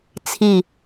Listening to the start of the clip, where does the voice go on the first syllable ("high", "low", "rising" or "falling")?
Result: low